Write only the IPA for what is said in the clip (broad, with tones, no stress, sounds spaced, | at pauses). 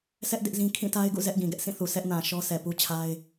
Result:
s ɛ˦ ʔ d ɪ˦ ʔ z ĩ˦ kʰ ĩ˦˨ t a˦ ɪ̯ ɡ ṵ˦˨ z ɛ˦ ʔ ɡ ĩ˨ ɡ ɛ˦ ʔ s ĩ˦˨ θ u˨ s ɛ˦ ʔ n ã˨ ʃ ɔ˦ s ɛ˨ p u˦ t͡ɕʰ a˦ ɪ̯